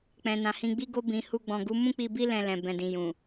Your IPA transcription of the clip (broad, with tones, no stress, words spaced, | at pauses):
k͡pɛ̃˨nã˨hĩ˧ ɡ͡bi˧ɡo˧ bĩ˨hu˧ɡ͡bɔ̃˨ ɡu˨˦mũ˦k͡pi˧bi˦ lɛ̃˧lɛ̃˨ bɛ̃˨dĩ˨jũ˨